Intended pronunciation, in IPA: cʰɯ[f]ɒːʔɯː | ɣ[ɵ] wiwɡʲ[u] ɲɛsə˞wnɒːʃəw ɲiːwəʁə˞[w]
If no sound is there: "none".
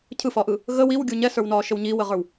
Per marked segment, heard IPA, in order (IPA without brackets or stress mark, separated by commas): f, ə, u, w